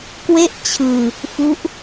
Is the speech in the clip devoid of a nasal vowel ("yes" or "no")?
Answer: yes